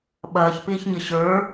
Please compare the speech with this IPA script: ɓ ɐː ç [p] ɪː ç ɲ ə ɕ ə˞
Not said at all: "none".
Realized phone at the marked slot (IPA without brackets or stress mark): p